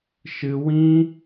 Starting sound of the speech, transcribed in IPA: ʃ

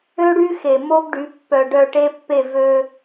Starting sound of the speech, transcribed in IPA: ø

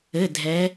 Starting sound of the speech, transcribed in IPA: ɘ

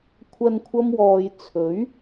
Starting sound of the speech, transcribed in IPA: kʷʰ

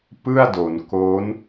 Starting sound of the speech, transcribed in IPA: p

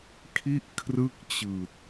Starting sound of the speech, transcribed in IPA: kʰ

